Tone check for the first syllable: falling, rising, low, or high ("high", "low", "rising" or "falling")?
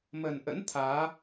low